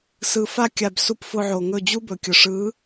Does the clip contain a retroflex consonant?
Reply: yes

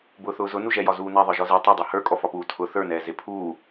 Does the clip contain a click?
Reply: no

